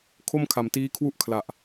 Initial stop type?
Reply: aspirated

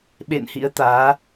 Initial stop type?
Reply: implosive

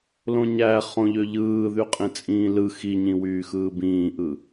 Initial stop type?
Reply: ejective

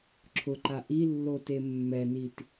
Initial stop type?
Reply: click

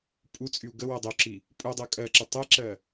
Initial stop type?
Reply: ejective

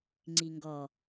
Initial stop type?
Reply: click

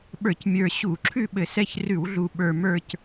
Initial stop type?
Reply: implosive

